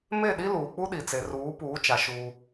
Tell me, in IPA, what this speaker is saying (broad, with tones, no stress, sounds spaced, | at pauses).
m e˦˨ ɗ i˦ l uː˨ k͡p u˦ ɗ i˨ t͡s e˨ r uː˨˦ p uː˨˦ t͡ʃ a˨ ʃ uː˦